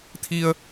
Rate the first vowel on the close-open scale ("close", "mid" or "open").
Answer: close